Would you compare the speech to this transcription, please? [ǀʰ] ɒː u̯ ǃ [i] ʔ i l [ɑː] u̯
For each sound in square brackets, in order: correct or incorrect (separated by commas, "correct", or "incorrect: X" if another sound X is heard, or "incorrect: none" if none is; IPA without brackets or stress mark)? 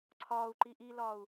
correct, correct, incorrect: ɒː